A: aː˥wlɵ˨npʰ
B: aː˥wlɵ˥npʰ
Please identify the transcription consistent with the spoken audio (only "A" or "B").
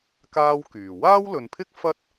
A